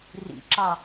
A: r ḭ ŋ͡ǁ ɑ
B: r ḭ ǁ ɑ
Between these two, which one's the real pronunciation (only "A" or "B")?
B